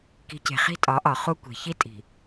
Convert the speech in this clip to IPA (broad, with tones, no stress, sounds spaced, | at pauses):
k i̤˨˦ c e̤˨ χ i̤˦ tʼ ɒ˨˦ ʔ ɒ˨ χ u˦ kʷ e̤˨ ç i˦ tʼ i̤˨